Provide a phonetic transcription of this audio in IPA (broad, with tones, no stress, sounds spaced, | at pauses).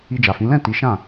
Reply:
i˧ d͡ʒ a˨ f ĩ˨˦ l ɛ̃˦˨ t i˨˦ ʃ ã˦˨